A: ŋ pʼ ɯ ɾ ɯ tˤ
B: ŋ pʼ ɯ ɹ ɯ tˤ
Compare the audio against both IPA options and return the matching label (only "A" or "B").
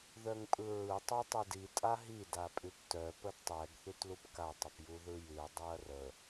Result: B